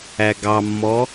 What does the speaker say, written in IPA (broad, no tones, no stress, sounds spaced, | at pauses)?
æ ɡ ɑ mː ɔ